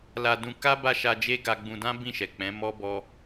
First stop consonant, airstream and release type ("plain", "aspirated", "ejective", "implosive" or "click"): plain